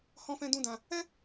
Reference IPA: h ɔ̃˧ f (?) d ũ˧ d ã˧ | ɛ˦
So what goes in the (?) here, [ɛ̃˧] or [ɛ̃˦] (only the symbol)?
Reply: ɛ̃˧